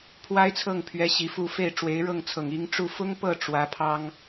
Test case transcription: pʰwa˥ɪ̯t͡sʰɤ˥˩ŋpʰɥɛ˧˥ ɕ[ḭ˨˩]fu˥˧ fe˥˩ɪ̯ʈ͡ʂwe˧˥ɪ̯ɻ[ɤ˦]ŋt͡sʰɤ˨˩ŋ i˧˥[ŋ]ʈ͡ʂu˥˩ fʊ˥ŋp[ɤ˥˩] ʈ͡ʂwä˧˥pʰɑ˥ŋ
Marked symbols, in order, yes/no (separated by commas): no, no, yes, yes